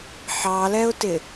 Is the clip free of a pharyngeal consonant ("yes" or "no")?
no